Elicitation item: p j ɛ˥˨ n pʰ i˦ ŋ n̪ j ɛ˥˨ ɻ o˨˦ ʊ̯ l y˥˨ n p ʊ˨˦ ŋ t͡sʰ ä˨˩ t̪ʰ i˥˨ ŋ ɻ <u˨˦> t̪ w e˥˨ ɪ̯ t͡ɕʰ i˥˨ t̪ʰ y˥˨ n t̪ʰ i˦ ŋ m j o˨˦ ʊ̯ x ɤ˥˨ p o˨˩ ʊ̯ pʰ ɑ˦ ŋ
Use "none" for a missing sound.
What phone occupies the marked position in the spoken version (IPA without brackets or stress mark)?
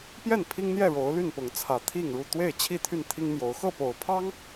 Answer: u˥˨